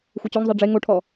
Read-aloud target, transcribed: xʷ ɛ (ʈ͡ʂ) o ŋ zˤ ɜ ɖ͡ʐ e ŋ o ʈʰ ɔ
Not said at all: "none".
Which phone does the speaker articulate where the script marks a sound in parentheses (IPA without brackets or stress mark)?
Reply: t͡ɕ